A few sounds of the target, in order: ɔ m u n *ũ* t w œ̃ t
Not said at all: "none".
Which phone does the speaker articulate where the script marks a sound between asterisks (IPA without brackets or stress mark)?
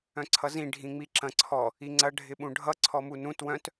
ũ